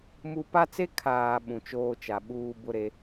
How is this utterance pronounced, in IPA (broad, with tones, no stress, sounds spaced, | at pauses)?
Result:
m u˦ p a˦ t͡s e˦ kʰ aː˨ ɓ ũ˨ t͡ʃ oː˦ t͡ʃ a˨ ɓ uː˦ b ʊ˦ ɾ e˦